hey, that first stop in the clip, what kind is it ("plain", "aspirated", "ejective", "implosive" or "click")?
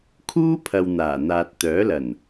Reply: aspirated